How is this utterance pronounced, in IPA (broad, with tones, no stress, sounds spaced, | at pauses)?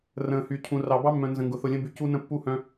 r ə̃ː˨ h y˨ cʰ ũ˨ r ɑ˨ b ɑ˦ mː œ̃˨ n z ə̃˨ ŋ ɡ ʊ˨ θ ʊ˨ lʲ ə̃˦ b y˨ c u˦ n ə̃˦˨ pː u˦ h œ̃˦